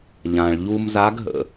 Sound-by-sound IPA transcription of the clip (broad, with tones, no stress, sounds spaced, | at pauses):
ʎ ã˩ ɭ ʎ u˧ m z a˧˥ ɡ ɦ ə̰˩